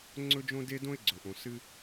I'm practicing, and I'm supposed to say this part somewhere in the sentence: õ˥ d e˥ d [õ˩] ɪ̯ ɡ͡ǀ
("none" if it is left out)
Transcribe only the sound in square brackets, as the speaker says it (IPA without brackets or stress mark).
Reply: õ˥